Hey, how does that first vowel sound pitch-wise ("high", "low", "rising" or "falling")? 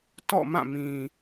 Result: falling